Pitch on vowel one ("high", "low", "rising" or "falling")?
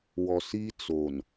low